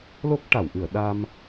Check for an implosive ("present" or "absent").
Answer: present